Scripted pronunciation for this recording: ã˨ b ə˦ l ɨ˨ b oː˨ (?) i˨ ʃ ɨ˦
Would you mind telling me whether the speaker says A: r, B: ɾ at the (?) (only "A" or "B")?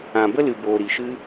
B